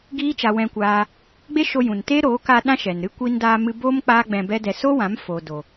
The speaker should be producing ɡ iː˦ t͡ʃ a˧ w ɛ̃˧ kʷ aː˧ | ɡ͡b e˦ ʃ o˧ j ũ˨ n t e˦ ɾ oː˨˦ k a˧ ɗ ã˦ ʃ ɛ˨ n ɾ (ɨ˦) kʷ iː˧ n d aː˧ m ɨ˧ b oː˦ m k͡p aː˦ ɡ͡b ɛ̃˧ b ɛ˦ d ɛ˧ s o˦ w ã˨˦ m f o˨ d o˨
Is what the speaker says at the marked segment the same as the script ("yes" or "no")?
yes